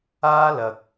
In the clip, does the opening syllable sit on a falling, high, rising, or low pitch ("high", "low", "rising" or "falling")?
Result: high